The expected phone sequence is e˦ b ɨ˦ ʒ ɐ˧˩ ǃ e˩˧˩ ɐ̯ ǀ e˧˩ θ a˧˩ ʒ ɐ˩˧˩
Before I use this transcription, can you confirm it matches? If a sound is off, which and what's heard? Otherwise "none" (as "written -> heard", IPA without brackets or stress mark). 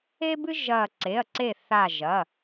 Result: ǃ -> ǀ